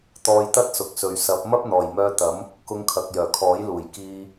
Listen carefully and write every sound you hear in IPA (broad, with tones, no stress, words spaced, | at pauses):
t̪ɔː˧jt̪ɐ˥t̚sʊ˨k̚sɵ˨ɥ sɐ˨˥p̚ mɐ˥p̚n̪ɔː˨˩jmœː˧t̪ɐ˨˥m | kʊ˧ŋkʰɐ˨k̚jœː˨˩ kʰɔː˨˥jluː˨˩j kiː˧